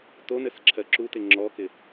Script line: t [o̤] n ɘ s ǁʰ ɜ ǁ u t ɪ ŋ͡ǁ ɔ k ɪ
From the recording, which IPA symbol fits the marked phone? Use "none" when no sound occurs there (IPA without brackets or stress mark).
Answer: o